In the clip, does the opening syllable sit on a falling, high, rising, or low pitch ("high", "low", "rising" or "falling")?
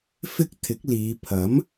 high